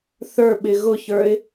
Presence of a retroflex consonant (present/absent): absent